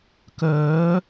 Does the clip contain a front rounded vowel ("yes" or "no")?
yes